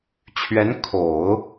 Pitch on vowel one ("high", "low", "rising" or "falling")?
rising